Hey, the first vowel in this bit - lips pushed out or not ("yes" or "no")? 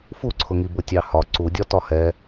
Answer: yes